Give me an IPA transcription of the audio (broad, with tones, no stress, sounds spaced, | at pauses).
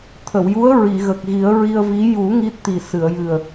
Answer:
t̪ʰ ə˨˩˨ w j u˧˥ ə̯ ɹ i˨˩˨ ɣ ə˨˩ k̚ ɣ i˨˩˦ ə̯ ɹ i˧ ə̯ v i˧˥ j u˨˩˦ ŋ i˦˥ t̚ t̪ i˨˩ s ɨ˨˩˨ ə̯ j ɨ˨˩ ə̯